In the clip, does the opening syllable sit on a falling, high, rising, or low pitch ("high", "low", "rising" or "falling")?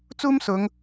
high